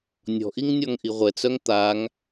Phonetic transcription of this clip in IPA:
nʲ ɔ̤ ʔ i ŋ nʲ ɔ ŋ ʔ i ʁʷ ɛ t͡s œ ŋ t̪ a ŋ

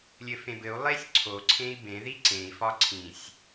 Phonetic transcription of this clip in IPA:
lʲ ɘ f ẽ b ɘ u̯ lˠ e sʲ ǀʰ o ǀʰ ẽ i̯ b ẽ ð i ǀ ẽ i̯ f ɒ ǀʰ ĩ sʲ

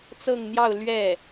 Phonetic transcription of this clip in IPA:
t͡s ɤ˥˧ ŋ n̪ j ɑ˥˧ ʊ̯ l ɥ ɛ˥˩

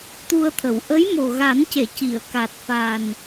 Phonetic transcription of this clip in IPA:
t̪ u˧ ə̯ t̪ʰ ə˨˩˨ w ʔ ə˧˥ j m o˨˩ ɣ a˨˩˦ n c e˨˩˨ c i˨˩˨ ə̯ k a˨˩ t̚ f a˨˩ n

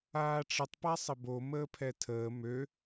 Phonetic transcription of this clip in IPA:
aː ʈ͡ʂ ə tˤ p a sˤ ə b o m əː pʰ ɛ tʰ əː m ø

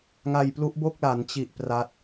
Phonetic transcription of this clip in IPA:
ŋ a˧ j p l u˦˥ ʔ b o˥˩ k̚ l a˩˦ n t͡ɕ i˨˩ ʔ p r a˦˥ t̚

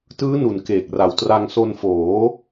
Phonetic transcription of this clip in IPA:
t ɯː˦˥ n u˨˩ n k eː˨˩ k̚ r a˨˩ w t r a˧ ŋ s o˧ n f oː˩˦

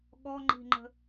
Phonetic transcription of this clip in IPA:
ɠ ɔ ŋ͡ǃ i̤ ŋ͡ǃ ə̤

